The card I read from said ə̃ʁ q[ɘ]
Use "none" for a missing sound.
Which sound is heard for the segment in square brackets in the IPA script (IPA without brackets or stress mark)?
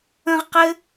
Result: ɘ